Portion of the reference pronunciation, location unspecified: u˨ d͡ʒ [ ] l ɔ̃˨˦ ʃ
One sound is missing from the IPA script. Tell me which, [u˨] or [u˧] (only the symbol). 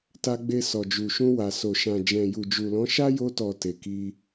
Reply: u˨